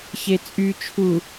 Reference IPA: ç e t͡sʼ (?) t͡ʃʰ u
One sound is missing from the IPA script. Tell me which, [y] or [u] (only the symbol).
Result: y